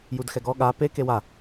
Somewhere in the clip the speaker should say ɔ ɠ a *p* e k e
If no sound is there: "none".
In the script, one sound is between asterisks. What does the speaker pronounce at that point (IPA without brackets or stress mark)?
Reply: p